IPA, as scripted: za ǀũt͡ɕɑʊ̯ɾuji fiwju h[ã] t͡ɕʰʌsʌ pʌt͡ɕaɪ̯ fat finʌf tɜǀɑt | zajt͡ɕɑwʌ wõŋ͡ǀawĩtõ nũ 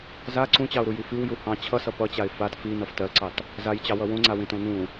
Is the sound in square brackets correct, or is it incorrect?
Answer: incorrect